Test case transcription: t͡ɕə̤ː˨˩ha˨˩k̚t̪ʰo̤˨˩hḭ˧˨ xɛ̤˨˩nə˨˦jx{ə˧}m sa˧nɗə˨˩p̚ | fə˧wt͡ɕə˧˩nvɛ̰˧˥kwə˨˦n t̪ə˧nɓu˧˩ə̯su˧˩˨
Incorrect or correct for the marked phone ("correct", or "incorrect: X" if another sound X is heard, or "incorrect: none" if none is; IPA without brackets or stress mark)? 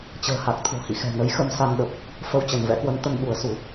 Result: correct